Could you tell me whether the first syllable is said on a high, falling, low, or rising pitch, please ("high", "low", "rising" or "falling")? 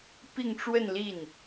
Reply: falling